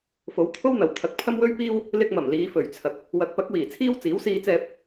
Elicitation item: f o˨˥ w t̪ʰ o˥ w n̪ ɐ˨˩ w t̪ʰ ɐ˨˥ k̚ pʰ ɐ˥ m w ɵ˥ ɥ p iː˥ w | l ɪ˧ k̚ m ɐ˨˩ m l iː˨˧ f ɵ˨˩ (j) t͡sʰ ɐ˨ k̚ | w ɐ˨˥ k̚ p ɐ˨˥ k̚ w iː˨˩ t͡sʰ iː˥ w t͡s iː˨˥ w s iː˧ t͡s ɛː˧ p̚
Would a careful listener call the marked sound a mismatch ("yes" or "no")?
yes